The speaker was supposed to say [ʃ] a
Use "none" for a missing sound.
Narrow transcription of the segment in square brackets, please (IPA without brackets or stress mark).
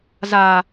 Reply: z